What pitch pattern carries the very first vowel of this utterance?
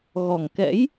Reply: low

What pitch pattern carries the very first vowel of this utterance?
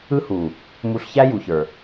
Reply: high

